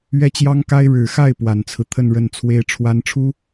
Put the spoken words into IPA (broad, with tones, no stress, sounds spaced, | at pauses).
ɥ ɛ˥ t͡ɕ j ɑ˥ ŋ k a˥ ɪ̯ ɻ ɻ̩˨˩ x a˥˩ ɪ̯ p w a˨˩ n t͡sʰ ɹ̩˦ t̪ʰ ə˥˧ n ɻ ə˥˩ n t͡sʰ w e˥ ɪ̯ ʈ͡ʂʰ w a˧˥ n ʈ͡ʂʰ u˥